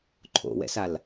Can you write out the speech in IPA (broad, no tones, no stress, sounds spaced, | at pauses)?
ǃʰ o̰ w ɛ̰ s a l